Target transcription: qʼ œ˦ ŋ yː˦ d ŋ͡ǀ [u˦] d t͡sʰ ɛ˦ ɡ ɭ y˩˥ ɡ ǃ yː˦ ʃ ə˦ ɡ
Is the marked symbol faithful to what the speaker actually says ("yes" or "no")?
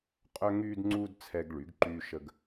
no